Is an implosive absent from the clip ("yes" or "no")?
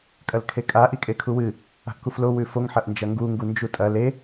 yes